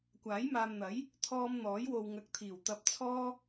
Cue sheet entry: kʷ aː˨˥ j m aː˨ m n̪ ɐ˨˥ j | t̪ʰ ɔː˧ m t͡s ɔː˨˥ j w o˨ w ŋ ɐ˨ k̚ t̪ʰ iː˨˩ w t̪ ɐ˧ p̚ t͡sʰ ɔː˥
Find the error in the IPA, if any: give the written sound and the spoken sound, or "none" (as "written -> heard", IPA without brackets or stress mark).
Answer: t͡s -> n̪